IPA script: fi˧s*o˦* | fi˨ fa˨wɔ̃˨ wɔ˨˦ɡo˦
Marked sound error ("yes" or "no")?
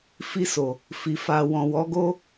yes